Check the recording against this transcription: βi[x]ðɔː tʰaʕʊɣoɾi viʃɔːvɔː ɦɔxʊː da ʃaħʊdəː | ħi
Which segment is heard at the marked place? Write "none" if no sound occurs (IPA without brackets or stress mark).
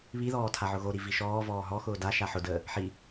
none